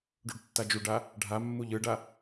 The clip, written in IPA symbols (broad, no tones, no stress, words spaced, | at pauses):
ɖuɖtːad͡ʒuɖa | ɖʱamːuʎ ɯɖa